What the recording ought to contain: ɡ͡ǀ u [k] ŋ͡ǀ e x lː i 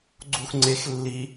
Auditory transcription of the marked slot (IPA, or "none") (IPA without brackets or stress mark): x